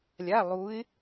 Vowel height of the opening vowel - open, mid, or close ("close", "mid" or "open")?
open